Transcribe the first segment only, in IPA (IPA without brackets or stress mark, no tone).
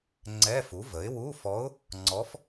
ŋ͡ǀ